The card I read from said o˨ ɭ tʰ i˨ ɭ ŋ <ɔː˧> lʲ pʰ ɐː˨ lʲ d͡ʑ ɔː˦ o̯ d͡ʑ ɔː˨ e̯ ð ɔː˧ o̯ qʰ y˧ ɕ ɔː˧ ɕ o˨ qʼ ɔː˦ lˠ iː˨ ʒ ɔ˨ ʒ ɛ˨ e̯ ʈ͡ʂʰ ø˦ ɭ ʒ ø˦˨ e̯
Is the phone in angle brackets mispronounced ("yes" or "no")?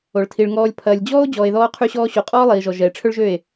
no